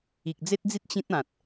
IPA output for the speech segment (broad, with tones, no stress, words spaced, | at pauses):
i˨k̚ d͡ze˦t̚d͡zi˦t̚ t͡ɕĩ˦t̚ã˨t̚